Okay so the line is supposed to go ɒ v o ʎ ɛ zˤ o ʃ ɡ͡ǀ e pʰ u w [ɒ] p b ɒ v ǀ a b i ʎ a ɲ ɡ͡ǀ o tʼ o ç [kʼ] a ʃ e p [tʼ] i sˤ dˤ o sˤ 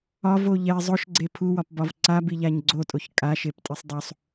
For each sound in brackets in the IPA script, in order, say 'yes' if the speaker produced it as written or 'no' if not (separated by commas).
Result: yes, yes, yes